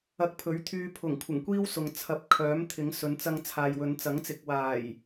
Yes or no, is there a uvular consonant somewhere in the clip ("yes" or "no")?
no